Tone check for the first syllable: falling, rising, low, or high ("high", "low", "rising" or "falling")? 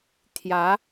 rising